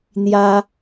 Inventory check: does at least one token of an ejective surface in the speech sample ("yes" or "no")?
no